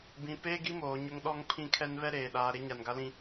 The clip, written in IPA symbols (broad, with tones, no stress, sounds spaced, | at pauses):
b ĩ˨ p eː˦ ɡ i˦ m oː˨ ɲ ʊ˦ ŋ ɗ ɔ˦ ŋ pʰ ĩ˦ kʰ ɛ˦ n β ɛ˦ ɾ eː˨ ɗ aː˨ ɾ e˦ ɲ a˨ n ɡ a˦ l ĩ˦